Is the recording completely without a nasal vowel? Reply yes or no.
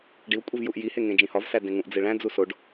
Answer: no